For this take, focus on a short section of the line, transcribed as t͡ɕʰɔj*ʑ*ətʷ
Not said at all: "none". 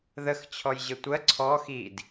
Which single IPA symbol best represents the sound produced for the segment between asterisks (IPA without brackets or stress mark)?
ʑ